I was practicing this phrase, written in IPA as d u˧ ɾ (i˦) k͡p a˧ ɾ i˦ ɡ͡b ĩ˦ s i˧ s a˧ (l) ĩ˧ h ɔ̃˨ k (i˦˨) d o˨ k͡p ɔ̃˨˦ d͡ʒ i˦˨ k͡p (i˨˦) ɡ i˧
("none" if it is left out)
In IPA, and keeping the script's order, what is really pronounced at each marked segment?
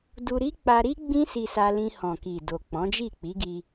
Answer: i˦, l, i˨, i˨˦

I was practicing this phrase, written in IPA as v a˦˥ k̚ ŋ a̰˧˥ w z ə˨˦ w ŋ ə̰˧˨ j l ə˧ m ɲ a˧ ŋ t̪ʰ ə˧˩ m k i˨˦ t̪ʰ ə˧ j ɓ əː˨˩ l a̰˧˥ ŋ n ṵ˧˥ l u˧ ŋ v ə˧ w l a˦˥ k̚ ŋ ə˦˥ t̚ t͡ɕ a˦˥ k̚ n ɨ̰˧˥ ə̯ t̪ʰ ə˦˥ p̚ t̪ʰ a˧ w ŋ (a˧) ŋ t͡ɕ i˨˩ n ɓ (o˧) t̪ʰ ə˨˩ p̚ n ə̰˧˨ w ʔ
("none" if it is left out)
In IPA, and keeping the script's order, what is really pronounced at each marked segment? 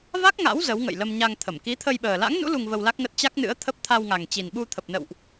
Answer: a˨˩, u˧

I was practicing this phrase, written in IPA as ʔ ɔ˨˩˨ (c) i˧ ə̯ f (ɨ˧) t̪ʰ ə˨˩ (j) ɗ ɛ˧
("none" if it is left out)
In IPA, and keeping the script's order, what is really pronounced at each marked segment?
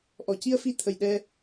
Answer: c, i˧, j

